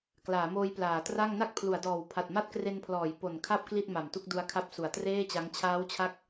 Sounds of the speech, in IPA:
klaː˩˦moː˧j plaː˩˦tra˥˩ŋ na˥˩k̚pʰlu˩˦a̯dɔː˨˩w pʰa˨˩t̚ma˥˩t̚kre˧npʰlɔː˩˦j po˨˩nkʰa˥˩p̚ kli˥˩t̚ma˨˩mtu˥˩k̚ du˧a̯kʰa˦˥p̚su˩˦a̯ treː˥˩t͡ɕa˦˥ŋ t͡ɕʰaː˦˥wt͡ɕʰa˦˥k̚

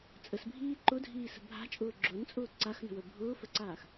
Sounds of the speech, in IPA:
t͡sʼəsbʱiː ǃʊdʱiːsə̤ bʱa̤t͡ʃʼʊː ɡ͡ǁʊnt͡sʼʊː ǀaxnə̤wə bʱʊːfəǀaːx

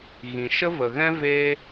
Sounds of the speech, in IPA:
ɣĩ˨ʃə˦və˨ɣɛ̃˦ veː˦

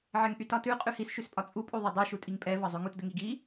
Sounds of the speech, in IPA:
ʕɛŋʔytɒtʉ qʼʉhis ʃʉspʼɒt͡sʼu pʼuðˤɛdˤy ʃutʼiŋpʼɛ vɒzˤʉŋut dəŋiɡi

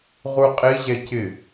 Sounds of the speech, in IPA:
ʁuqʼiʑɛ cɪ

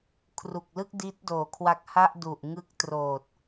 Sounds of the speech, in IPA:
kʰru˨˩k̚lɯ˥˩k̚di˦˥t̚doː˨˩ kʰwa˦˥k̚ha˥˩ʔ du˨˩ʔŋɯ˦˥k̚troː˨˩t̚

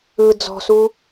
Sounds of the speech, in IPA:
ɯ d͡zɔ̤su

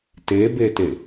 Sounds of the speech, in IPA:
tebete

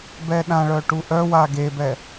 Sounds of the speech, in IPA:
bɛɗãɭœ ʈuʔœwa ɡebɛ

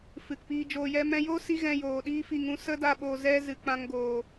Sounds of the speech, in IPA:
fɨ˨kpiː˧d͡ʒoː˧jɛ˦ mɛ̃˧jo˦si˧ ɣɛ̃˧joː˨ɗiː˦ fi˧ŋũ˧ sə˦da˧ ɓo˨zɛ˧ zɨ˨k͡pã˧ŋ ɡoː˨

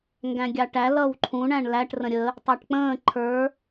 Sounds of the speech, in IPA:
ŋɡæ̃ɡʲɑʈæ lʌwǃʰũ ɳæ̃ɳlæʈ rə̃ɾʲə | tˤɑʈk͡pə̃ː ǃʰə˞

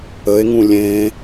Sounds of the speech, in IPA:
əe̯ŋũ lʲẽ

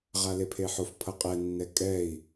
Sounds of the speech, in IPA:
ʁalepʰeħof pʰʌqʼɛ nːɛkʼɛi̯

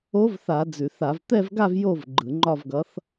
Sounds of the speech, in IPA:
o˧˥vθa˧˩˧ d͡zʉ˧˩˧θ a˧˩˧v t̪ɛ˥˧vɡa˥˧v jo˥˧v ɡ͡ǃɯ˧˩˧ŋ͡ǃɒ˥˧vɡʌ˧˥θ

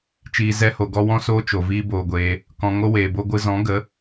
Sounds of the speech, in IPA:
t͡ʃiː˧zɛ˦ho˧ɡɔ˦ wɔ̃˦soː˦t͡ʃo˨ viː˦boː˧ɡʷeː˧ | kɔ̃˨ŋo˦weː˨bo˦ ɡʷɨ˧zɔ̃˨˦ɡə˨˦

